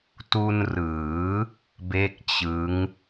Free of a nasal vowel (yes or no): yes